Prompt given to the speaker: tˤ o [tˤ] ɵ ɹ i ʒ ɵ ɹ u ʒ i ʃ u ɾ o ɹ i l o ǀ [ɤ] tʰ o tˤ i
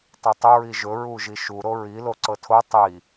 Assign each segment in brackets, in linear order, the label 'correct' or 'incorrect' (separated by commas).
correct, correct